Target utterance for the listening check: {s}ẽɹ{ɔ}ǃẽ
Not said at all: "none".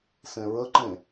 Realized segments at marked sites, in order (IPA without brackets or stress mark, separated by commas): s, ə